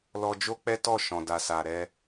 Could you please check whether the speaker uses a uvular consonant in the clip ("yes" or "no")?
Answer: no